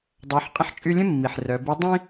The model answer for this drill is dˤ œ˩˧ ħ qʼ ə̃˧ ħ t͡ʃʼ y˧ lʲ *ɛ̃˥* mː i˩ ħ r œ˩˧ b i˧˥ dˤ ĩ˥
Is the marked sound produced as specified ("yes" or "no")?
no